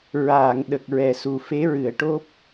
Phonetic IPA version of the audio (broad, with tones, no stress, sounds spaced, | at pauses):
ɹ aː˨˩˨ ŋ ɗ ə˨˩ k̚ ɹ ɛ˨˩ s u˨˩ f e˧˥ ɹ ɨ˨˩˨ ə̯ ʈ o˦˥ p̚